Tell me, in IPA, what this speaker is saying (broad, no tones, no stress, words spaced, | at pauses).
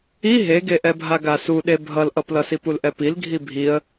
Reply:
i ɦeɡeʔɛbʱa ɡasuɗe bʱʌlʔʌplʌsip ulʔɛpil ɡʱibʱiə̯